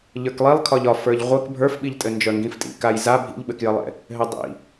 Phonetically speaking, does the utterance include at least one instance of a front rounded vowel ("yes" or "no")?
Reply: yes